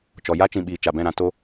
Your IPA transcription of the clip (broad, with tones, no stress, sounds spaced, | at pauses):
t͡ʃ ɔ˨ j a˦ t͡ʃ ĩ˨ ɓ iː˨ t͡ʃ a˨ b ɛ̃˦˨ ɾ ã˧ t o˧